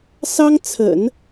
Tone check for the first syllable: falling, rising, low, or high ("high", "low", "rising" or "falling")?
high